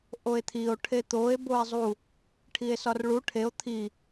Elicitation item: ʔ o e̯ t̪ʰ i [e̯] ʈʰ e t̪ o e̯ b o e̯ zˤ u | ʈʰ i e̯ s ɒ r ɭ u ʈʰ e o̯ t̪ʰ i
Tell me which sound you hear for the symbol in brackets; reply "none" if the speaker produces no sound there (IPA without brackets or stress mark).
o̯